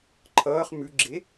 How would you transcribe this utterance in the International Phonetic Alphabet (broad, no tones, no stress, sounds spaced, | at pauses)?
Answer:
ǃʰ ʌː χ m ʉ ɡ͡ǁ e